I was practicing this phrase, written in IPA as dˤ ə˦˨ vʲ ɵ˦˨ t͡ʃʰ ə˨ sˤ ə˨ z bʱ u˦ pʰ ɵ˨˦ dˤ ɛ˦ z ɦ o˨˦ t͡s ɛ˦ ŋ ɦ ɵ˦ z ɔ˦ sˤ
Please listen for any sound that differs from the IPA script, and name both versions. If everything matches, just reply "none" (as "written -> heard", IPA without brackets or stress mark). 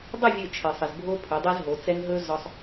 u˦ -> o˦